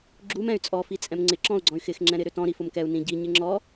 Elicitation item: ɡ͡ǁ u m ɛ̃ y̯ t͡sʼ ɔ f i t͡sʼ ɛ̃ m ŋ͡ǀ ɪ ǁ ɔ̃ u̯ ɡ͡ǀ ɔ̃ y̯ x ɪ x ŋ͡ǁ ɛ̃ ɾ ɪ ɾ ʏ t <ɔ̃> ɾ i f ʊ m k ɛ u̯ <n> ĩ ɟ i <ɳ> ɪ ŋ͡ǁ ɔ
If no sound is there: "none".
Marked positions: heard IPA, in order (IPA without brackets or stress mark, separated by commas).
ɔ̃, n, ɲ